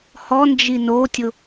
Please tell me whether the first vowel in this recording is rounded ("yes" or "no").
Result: yes